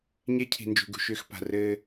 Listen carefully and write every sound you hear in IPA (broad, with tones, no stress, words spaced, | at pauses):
ɲe˦cʰi̤˨ nd͡ʒṳ˨ɡṳ˦˨ʃʏː˦xpa̤˨ rɘː˦